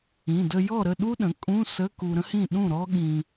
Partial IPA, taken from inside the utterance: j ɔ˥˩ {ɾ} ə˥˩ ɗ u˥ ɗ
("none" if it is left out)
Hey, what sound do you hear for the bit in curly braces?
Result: ɾ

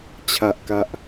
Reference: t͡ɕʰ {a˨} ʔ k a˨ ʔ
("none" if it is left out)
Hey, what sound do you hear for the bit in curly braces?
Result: a˨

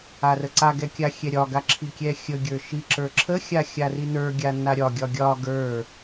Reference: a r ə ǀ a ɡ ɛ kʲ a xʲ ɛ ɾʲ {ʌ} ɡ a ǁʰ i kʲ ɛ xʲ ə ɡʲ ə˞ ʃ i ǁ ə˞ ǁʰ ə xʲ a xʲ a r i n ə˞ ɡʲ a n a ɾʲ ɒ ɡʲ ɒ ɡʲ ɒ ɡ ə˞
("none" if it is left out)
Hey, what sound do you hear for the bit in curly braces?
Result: ɒ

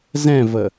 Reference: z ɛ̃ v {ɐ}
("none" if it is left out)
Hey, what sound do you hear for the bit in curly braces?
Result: ə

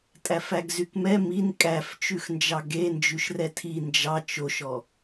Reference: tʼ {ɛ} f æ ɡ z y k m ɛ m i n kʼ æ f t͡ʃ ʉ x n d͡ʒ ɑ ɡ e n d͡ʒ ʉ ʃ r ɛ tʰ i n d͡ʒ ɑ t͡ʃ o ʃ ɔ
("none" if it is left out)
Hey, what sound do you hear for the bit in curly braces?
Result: æ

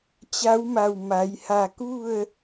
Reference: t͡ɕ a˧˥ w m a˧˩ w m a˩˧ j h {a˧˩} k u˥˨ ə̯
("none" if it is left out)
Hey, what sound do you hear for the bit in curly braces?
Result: a˧˩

